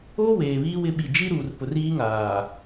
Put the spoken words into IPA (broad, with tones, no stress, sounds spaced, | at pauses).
o˦ w eː˨ β iː˦ w ɪ˦ ɓ i˨ d͡ʒ i˦ ɾ uː˨ r p ʊ˨ r iː˦ ŋ aː˨